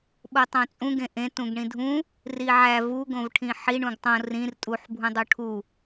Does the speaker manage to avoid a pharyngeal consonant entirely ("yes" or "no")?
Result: no